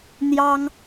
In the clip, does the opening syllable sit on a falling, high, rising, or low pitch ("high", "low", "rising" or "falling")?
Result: high